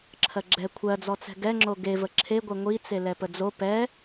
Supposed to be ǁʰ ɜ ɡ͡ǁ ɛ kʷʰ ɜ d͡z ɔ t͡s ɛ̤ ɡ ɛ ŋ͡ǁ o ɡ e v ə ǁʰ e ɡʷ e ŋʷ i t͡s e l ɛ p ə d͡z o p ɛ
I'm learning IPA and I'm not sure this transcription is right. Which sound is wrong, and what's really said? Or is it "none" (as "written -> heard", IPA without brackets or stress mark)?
none